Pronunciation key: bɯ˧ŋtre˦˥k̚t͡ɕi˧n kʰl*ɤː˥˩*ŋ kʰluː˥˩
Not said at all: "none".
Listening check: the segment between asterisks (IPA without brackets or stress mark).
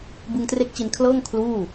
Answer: ɤː˥˩